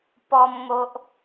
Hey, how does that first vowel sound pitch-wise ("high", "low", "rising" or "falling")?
high